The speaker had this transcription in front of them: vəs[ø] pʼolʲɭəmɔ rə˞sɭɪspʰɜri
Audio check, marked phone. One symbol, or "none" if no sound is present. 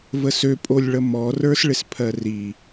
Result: ø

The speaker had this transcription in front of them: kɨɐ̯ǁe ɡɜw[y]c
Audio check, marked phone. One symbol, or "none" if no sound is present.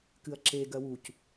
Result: u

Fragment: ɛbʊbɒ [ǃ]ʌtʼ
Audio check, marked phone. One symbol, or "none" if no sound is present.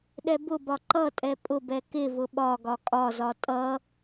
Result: ǃ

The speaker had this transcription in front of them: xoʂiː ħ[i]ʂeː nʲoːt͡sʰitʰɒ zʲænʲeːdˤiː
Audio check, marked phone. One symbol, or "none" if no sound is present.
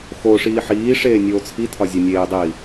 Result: iː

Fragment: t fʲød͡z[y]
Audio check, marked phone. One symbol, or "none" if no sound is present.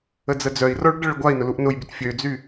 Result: y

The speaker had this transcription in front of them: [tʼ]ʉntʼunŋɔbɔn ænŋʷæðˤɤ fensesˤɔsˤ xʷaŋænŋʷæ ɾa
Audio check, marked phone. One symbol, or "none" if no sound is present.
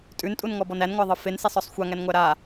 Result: tʼ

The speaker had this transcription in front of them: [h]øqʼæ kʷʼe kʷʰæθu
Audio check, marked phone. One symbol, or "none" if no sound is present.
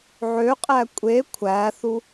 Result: ʕ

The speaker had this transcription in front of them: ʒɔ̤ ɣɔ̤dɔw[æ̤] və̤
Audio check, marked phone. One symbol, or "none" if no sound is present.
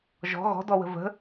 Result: ə̤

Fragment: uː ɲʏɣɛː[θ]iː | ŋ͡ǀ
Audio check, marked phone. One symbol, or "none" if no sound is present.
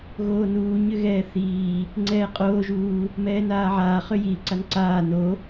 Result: θ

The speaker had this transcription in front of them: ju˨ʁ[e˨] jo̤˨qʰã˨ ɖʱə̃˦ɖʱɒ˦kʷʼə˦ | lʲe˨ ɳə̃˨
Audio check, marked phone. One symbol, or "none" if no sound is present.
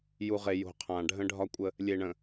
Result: e˨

